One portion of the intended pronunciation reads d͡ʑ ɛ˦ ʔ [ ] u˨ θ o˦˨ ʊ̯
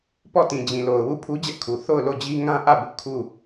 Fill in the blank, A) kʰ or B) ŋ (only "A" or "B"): A